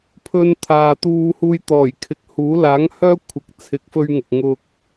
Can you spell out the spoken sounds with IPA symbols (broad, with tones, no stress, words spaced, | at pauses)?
pʰɵ˧n t̪ʰaː˨t̪uː˧ huː˧jt̪ɔː˨˩jkʰɪ˨k̚huː˨˥ laː˨˥ŋhœː˥ kʷʰɪ˨˥k̚t͡sʰɪ˨˥k̚fɵ˧ɥŋʊ˨k̚ ŋʊ˧k̚